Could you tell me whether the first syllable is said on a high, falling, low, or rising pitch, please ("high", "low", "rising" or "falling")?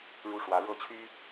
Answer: high